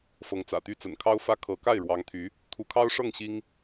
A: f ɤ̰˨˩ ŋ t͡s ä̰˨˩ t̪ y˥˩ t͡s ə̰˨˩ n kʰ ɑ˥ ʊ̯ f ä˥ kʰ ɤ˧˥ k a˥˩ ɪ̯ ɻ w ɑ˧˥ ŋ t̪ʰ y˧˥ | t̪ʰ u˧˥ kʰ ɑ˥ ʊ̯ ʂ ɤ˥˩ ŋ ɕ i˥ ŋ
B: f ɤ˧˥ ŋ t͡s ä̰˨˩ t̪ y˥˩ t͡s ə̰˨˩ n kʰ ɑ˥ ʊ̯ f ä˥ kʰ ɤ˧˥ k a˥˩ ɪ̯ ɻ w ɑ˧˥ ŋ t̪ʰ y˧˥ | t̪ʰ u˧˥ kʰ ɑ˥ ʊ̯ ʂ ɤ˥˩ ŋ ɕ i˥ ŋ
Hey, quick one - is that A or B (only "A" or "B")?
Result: B